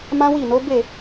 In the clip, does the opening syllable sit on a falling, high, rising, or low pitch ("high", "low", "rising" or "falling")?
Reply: high